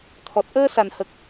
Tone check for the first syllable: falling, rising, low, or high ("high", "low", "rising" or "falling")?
low